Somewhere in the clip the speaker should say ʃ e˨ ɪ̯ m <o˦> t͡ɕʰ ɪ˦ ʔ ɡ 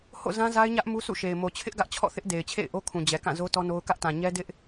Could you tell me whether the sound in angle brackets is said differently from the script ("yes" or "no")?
yes